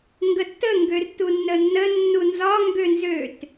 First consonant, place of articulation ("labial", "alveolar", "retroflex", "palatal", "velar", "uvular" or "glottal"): velar